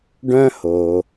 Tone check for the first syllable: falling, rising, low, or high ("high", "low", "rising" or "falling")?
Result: high